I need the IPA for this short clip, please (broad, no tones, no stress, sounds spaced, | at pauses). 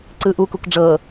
ǀ ɯ ʔ u k u k ɖ͡ʐ ɤ